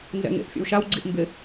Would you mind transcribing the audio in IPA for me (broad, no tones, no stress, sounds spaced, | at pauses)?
n z ɛ̰ ŋ ḛ ʔ fʲ o̰ w ʃ a w ɡ͡ǀ i ʔ m b ɪ